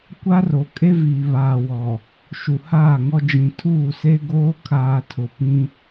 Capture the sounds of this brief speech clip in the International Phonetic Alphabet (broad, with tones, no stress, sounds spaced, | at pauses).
kʷ a˦ r o˨ kʼ e˦ v iː˨ β aː˨ w ɔ˨ | ʃ u˨ h aː˦˨ ŋ ɔ˦ d͡ʒ ĩ˨ tʰ uː˦˨ s e˦ ɡ oː˦ kʰ aː˨ tʰ ʊ˨ p ĩ˦